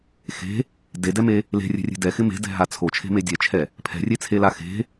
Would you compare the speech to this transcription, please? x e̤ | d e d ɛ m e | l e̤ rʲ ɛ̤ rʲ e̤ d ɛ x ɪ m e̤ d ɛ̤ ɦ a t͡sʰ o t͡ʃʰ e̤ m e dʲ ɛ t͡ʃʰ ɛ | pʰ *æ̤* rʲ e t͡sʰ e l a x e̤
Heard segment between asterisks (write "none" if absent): ɛ̤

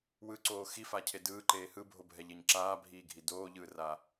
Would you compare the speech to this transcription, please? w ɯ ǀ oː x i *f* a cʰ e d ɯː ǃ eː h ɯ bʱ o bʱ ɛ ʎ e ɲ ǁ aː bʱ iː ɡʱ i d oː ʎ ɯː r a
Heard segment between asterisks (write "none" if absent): f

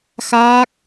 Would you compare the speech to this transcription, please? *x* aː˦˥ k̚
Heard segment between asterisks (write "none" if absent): x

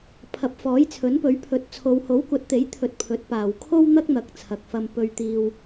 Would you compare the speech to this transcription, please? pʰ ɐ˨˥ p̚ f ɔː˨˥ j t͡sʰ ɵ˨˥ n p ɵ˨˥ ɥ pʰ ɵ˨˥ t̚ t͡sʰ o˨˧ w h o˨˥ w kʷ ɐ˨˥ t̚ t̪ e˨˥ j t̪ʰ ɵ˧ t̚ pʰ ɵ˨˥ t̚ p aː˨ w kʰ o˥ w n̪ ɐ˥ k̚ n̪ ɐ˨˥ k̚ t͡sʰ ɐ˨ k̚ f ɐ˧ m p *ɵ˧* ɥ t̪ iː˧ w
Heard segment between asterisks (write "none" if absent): ɵ˧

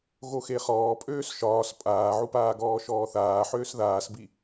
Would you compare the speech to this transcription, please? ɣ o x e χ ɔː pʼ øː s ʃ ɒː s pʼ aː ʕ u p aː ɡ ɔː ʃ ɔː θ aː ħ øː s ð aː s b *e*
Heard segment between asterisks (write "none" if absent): i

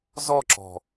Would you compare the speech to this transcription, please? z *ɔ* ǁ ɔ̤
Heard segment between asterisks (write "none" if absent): ɔ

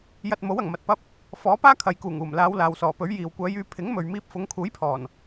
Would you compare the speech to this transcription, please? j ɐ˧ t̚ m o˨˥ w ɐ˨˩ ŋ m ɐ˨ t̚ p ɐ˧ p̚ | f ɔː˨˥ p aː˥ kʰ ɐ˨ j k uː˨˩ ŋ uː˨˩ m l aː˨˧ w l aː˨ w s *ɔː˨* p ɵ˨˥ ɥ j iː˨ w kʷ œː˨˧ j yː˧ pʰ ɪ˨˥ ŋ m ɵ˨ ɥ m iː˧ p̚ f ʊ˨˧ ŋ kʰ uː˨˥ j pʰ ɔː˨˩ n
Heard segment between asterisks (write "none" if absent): ɔː˨˩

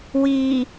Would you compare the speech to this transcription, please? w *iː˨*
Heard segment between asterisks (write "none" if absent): iː˨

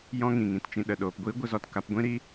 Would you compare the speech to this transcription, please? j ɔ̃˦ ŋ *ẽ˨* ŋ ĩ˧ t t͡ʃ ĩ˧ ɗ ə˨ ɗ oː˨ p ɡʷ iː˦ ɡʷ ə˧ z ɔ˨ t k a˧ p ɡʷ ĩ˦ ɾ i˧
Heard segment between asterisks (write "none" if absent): ĩ˨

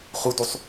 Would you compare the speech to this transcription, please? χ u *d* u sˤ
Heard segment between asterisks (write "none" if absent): d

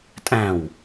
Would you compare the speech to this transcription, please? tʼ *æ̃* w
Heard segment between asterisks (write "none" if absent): æ̃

